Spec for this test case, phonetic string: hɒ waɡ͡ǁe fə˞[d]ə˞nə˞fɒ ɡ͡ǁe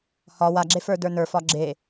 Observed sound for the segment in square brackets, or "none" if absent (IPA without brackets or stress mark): d